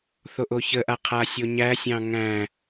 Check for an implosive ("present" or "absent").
absent